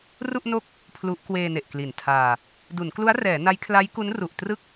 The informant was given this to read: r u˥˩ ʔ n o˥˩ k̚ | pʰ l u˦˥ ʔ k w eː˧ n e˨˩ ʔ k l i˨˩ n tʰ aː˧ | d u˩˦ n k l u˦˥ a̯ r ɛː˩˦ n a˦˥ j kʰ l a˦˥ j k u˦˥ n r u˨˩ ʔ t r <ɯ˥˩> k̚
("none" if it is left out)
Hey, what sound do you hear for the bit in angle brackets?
ɯ˥˩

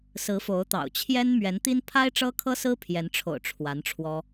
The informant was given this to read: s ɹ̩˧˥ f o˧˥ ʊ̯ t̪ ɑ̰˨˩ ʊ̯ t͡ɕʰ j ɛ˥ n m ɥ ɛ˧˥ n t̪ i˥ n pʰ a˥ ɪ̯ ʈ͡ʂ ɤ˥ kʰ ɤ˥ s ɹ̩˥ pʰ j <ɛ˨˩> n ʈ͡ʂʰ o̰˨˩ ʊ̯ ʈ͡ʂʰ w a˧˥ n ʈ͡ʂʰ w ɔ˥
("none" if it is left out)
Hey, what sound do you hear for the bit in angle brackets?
ɛ˧˥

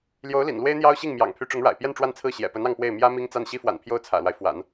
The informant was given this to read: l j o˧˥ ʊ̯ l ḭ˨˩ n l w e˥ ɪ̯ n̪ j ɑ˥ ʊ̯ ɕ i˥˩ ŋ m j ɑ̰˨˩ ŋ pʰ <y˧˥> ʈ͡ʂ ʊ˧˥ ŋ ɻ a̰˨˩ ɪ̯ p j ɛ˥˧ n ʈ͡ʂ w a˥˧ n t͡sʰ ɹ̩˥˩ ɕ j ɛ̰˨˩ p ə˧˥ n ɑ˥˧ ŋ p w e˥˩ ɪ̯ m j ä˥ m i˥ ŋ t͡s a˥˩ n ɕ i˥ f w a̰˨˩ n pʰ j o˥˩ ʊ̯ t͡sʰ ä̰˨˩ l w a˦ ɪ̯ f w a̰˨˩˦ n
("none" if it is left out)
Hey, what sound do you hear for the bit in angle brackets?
y˧˥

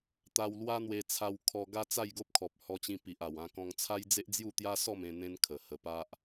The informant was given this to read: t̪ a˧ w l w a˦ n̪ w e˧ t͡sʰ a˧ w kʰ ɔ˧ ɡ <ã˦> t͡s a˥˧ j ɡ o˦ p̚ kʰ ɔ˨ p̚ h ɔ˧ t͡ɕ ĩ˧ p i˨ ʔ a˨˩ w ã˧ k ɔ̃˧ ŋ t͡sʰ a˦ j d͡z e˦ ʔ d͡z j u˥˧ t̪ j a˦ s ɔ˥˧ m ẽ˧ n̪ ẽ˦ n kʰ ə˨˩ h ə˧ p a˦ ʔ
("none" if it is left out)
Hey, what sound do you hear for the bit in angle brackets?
a˦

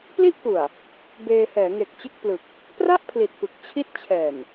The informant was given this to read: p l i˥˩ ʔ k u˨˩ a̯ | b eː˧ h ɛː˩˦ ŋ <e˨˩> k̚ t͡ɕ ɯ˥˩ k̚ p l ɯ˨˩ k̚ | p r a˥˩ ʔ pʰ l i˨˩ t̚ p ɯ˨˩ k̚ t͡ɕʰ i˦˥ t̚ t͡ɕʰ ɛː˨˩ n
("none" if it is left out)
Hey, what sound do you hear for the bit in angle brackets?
e˨˩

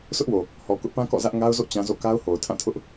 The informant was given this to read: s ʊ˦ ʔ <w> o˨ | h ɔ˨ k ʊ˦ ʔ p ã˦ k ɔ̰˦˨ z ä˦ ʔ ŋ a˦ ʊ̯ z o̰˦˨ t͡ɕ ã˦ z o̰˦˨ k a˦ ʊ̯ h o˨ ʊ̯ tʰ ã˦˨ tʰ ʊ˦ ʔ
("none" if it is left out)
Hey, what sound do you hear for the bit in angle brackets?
w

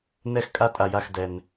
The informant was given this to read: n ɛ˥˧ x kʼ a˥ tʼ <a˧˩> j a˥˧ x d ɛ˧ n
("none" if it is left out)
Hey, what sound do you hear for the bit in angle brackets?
a˧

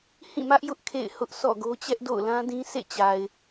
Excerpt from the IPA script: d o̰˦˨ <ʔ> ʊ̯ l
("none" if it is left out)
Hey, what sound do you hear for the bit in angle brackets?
none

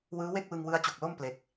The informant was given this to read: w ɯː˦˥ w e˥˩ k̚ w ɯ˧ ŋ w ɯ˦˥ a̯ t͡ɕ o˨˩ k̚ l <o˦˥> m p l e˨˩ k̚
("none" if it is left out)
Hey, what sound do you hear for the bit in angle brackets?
o˥˩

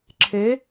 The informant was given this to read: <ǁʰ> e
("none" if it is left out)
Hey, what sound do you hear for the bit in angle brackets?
ǁʰ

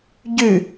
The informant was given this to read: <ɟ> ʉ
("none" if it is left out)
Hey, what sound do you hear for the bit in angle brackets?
ɟ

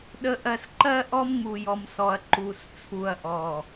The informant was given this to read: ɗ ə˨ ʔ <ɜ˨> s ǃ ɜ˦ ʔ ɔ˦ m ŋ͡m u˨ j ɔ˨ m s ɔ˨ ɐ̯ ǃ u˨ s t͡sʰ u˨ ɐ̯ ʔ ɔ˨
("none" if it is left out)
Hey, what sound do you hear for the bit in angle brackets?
ɜ˨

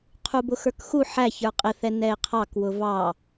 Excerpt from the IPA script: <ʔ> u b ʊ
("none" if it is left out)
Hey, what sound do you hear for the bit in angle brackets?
qʰ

